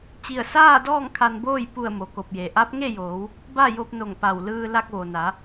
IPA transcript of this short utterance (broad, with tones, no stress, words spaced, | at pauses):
t͡ɕi˧˩ə̯saː˥˨dɔː˥˨ŋ kʰa˧nboː˥˨j pu˧˩ə̯ mo˩ko˧˩p̚je˩ ʔa˧˥p̚ŋe˥˨joː˩˧w | ba˥˨jo˧p̚no˧˩ŋ pa˧˩wlɯː˧ la˧k̚ ʋo˩na˩˧